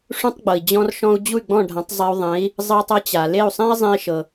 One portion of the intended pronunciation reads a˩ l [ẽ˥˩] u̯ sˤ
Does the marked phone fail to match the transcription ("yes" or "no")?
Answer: yes